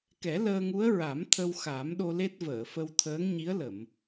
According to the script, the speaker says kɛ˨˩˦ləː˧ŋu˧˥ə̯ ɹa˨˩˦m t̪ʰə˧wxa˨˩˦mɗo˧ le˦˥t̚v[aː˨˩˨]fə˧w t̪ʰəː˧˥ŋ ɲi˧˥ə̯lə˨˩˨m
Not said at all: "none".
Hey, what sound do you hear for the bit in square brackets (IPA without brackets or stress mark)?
əː˨˩˨